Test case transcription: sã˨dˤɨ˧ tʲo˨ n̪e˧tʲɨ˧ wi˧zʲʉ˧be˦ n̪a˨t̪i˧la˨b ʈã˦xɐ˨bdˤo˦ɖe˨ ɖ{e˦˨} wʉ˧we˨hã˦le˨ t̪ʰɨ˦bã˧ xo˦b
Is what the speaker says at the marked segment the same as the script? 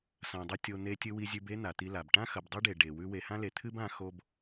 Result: no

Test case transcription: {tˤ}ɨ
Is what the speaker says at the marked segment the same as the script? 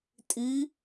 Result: no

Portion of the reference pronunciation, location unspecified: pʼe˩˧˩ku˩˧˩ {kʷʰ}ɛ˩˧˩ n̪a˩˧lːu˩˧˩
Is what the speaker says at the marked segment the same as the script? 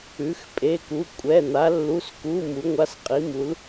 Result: no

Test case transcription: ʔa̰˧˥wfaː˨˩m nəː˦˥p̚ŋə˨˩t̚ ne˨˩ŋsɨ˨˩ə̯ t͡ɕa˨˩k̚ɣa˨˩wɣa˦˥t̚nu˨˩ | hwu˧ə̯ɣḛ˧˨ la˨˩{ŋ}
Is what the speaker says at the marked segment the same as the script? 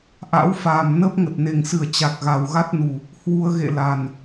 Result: no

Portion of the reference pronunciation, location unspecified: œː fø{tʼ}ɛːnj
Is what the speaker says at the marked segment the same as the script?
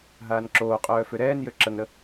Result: no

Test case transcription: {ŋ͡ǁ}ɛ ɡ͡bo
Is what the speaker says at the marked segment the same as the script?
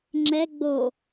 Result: yes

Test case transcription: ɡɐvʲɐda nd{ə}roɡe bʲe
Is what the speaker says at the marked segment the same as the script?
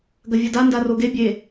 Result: no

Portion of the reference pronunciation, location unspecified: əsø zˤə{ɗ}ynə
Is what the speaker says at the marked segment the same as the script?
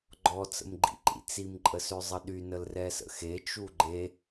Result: yes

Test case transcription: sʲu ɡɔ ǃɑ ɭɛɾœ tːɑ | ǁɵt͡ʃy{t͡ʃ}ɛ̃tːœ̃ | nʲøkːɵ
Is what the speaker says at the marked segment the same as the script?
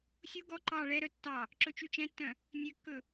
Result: yes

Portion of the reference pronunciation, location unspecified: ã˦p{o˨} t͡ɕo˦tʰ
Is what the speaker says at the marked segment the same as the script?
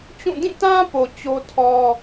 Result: yes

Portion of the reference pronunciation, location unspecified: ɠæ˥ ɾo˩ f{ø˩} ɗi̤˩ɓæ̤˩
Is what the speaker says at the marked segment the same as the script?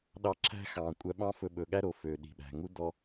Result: yes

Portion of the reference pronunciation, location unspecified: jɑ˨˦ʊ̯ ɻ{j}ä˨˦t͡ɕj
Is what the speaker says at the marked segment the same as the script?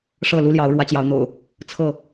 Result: no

